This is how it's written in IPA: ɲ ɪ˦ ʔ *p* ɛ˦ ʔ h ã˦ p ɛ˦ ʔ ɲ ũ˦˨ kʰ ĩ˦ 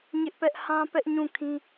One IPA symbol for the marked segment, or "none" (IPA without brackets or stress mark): p